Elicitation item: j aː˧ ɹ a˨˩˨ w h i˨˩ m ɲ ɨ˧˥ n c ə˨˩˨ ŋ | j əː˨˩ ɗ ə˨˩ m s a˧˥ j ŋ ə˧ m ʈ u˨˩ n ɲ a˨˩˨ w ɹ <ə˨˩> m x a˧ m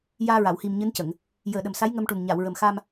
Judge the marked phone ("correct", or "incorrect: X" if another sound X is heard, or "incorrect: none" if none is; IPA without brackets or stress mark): correct